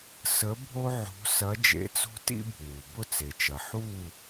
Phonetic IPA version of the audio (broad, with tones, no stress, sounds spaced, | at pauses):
s ə˧˥ bʱ o˥ ʕ o̤˧˥ s ɐ˧˥ d͡ʒ ḛ˧˥ t͡s o̤˥ t ḭ˥ bʱ uː˩ b ʊ˥˨ t͡s e˩ t͡ʃ ɐ˩ ħ uː˥˨